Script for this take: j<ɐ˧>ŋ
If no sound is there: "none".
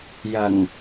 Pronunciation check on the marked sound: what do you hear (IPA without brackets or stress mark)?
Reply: ɐ˨˩